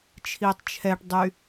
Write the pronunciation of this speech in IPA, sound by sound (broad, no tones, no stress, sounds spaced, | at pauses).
t͡ʃʰ i tˤ t͡ʃʰ ɛ ʈ dˤ y